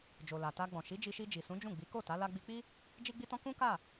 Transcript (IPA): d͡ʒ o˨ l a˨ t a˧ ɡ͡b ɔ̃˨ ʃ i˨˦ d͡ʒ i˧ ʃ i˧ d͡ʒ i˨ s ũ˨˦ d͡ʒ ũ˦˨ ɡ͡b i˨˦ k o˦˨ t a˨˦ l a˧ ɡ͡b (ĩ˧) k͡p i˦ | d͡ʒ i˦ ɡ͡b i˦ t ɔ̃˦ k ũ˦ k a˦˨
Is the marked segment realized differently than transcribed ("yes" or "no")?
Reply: yes